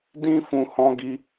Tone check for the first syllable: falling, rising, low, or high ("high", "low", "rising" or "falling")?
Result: high